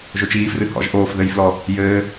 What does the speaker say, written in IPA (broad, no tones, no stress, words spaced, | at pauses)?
ʒot͡ʃiːfrɨ hɔ̰ʒ ʔoːfðɘjflɔ | jɘː